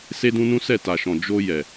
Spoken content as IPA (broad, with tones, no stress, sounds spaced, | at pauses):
s e˦ d ũ˦ n ũ˦ s ɛ˦˨ t a˨ ʃ ɔ̃˨ d͡ʒ o˧ j ɛ˨